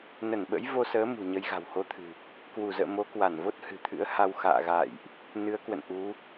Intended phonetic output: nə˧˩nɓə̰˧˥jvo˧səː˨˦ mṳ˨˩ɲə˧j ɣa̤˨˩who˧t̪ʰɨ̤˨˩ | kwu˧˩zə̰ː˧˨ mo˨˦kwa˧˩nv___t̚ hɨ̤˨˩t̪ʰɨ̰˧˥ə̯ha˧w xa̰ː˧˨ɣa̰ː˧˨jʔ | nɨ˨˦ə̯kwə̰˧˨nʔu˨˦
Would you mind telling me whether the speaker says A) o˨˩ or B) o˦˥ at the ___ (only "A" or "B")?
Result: B